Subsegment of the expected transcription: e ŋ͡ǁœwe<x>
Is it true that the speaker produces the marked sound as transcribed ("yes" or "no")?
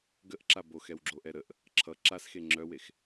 yes